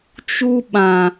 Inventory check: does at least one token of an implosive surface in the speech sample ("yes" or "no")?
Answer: yes